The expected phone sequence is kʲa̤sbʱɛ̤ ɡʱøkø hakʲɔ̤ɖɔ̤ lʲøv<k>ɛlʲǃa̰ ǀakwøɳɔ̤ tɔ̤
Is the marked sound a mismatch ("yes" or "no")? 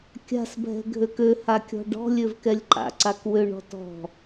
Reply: no